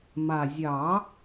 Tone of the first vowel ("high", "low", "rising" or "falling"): low